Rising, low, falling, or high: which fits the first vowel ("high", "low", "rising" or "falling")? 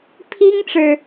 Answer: high